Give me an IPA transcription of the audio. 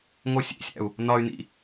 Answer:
ŋ o sʲ ḛ sʲ æ̰ u̯ | n ɒ y̯ n ḭ

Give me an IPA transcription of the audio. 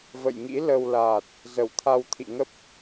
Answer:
v ə̰˧˨ j ŋ ḭ˧˥ l ə˧ w l aː˨˩ t̚ | z ə˧˩ w t̪ʰ a˧ w t̪ʰ ḭ˧˨ ŋ ə˦˥ p̚

